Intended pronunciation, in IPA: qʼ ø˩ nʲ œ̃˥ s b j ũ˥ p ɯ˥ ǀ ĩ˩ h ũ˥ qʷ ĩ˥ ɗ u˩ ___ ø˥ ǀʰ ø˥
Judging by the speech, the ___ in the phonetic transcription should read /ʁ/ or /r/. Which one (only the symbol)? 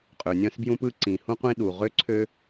ʁ